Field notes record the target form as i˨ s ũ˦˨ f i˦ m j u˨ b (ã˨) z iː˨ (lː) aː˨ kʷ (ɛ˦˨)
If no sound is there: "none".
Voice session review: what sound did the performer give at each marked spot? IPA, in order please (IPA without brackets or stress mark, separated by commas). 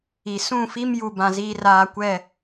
ã˨, r, ɛ˦˨